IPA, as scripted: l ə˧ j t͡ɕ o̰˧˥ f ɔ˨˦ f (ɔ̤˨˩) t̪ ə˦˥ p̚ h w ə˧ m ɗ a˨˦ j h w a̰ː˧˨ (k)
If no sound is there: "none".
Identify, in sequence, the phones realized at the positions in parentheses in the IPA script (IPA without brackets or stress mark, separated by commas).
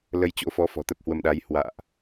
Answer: ɔ̤˨˩, ʔ